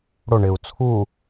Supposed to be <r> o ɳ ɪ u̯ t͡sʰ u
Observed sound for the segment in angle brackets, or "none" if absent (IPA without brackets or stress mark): ɽ